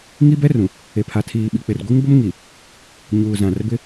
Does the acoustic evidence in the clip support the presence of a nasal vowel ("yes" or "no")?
yes